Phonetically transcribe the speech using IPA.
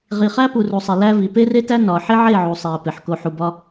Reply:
ʁ i˨ χ æ˦ p u˨ r u˨ sˤ i˨ l æ˦ v i˨ p e˦ r e˦ t æ˦ n ɒ˨ ħ e˦ ʕ e˦˨ ʕ u˨ sˤ i˨ ə̯ p e˨ ħ k o˨ ħ u˨ b ɒ˦

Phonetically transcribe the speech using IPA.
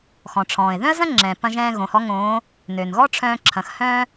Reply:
x ɔ̃˩ ʈ͡ʂʰ ɔ̃ː˩ ɪ̯ ð œ̃˥ ə̯ z ɐ̃˥ ŋ͡ǁ ɛ̃ː˩ p ɐ̃˧ ʒ ɛ̃ː˧ ɣ õ˩˧ h ɔ˧˥ ŋ õː˧˥ | n ø˩ n ɣ ɔ˥ ʈ͡ʂʰ œ̃ː˧ ǁʰ ɐ̃˩˧ x h œ̃ː˥

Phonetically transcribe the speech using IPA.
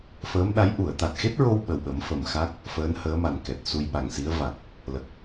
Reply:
f əː˧˥ m ɗ a˧˥ j ʔ u˨˩˨ ə̯ t̪ a˨˩ t̚ x e˦˥ t̚ ɹ o˧ w ɓ ə˨˩ w ɓ ə˨˩˦ m f ə˨˩ m x a˦˥ k̚ | f əː˧˥ n h əː˧˥ m a˨˩ n k ɛ˨˩ t̚ s u˧ j ɓ a˨˩ ŋ s i˧˥ ə̯ v a˨˩ k̚ | l ə˨˩ k̚

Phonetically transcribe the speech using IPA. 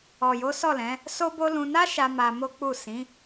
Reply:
ɔ˨ j o˨˦ s ɔ˦˨ l ɛ̃˨˦ | s o˦ b o˦ l ũ˧ n a˦ ʃ a˧ m a˧ m o˦ k͡p u˦˨ s ĩ˨˦

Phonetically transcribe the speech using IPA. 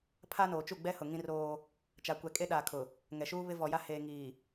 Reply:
pʰ a˦ n oː˨ t͡ʃ u˦˨ ɡ͡b ɛ˦ h ʊ˨ ŋ ĩ˦ r oː˦ | t͡ʃ a˨ kʷ ɛ˨ kʼ e˦ ɗ aː˨ kʰ ʊ˨ | ŋ ɛ˨ ʃ uː˦ β ɪ˦ v ɔ˨ j a˦ h eː˨ ŋ iː˨

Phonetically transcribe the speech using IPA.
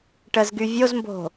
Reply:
ʈ ə z ɡ y vʲ o z m b o̤

